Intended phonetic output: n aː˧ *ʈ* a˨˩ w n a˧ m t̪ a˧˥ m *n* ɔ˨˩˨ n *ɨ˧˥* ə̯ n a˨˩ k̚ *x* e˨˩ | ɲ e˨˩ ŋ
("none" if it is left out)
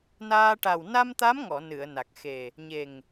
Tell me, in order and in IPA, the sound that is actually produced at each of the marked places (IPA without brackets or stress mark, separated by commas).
ʈ, ŋ, ɨ˨˩˨, x